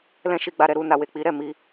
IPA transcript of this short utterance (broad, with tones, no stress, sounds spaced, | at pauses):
l ɛ̃˦ ʃ i˧ ɡ͡b a˧ ɾ ɛ˧ ɾ u˧ n a˨ w e˨ k͡p i˨˦ ɾ ɛ˦˨ m i˧